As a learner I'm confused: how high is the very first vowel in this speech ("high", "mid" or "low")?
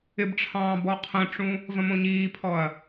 high